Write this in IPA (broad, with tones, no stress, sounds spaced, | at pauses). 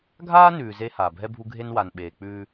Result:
ɡʱ aː˦ n ʉː˨ z e˦ h aː˨ bʱ ɛ˦ bʱ u˦ ɡʱ e˦ n w a˨ n ɓ eː˨ k͡p ʉː˦